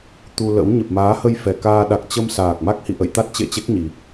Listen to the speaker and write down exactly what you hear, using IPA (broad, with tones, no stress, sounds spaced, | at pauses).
t̪ u˧ l ə̰˧˥ w ɲ ə˨˩ p̚ m aː˨˦ h ə˧ j f ɛ˨˩ k aː˧ ɗ a˨˩ k̚ t͡ɕ ə˧ m s aː˨˩ k̚ m a˦˥ k̚ h ḭ˧˨ ʔ ə̰˧˨ j t̪ a˦˥ t̚ t͡ɕ ḛ˧˨ t͡ɕ e˦˥ k̚ ɲ i˨˩